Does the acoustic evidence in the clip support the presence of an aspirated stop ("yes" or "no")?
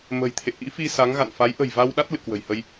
yes